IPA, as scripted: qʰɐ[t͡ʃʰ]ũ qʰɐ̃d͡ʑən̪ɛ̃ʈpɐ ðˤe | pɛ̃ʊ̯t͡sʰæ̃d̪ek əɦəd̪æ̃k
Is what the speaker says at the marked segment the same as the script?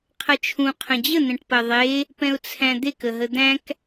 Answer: yes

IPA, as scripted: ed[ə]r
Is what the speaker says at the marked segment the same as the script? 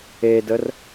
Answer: yes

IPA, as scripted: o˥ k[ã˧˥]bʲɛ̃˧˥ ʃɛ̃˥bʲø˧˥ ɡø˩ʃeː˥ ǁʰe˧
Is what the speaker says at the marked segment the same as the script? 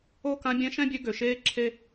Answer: yes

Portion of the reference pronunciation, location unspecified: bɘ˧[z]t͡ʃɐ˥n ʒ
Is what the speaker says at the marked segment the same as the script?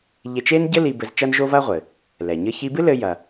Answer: yes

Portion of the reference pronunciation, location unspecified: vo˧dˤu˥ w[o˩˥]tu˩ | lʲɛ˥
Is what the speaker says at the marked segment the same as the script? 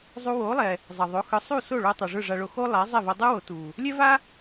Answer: yes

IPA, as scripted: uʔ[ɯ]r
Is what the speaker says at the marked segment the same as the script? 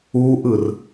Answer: yes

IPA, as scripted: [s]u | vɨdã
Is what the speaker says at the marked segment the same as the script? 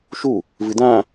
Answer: no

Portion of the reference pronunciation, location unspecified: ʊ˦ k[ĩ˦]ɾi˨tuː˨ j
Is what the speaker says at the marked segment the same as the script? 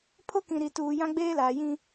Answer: no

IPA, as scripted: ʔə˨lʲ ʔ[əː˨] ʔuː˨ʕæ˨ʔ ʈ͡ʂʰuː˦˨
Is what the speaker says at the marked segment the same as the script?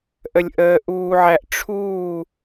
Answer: yes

